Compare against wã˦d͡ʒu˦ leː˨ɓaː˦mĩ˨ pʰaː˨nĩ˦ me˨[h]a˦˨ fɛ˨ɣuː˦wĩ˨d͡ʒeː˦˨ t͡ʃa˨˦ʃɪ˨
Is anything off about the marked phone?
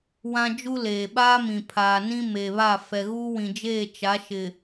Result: yes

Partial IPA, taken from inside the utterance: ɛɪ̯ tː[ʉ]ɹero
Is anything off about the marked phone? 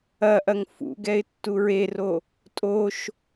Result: yes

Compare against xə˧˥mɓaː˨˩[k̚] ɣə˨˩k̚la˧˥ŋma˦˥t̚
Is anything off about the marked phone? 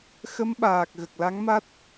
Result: no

